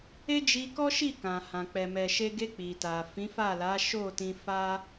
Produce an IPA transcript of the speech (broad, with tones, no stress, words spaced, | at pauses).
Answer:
e˦d͡ʒi˧kɔ˦ ʃi˦˨kã˨hã˨ k͡pɛ˨mɛ˨ʃe˧ɡe˧ k͡pi˨ta˨fĩ˨˦fa˦˨ la˨˦ ʃo˦˨tĩ˧ fa˦